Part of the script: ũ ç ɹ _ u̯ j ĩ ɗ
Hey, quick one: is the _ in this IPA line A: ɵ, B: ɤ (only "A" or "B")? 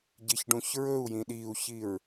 A